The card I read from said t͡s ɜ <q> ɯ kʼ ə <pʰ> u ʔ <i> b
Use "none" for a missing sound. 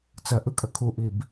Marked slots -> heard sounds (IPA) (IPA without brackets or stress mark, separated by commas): ʔ, kʰ, i